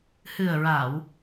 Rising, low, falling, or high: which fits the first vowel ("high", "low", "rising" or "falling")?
low